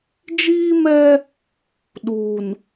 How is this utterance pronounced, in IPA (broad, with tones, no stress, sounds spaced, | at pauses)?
d͡ʒ iː˦ m ɛ˦ | ɗ u˨ n